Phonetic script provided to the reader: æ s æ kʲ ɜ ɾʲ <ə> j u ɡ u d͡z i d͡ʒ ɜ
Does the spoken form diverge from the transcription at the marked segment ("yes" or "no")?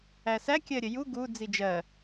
no